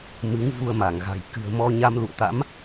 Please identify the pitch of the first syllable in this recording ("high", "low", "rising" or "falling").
rising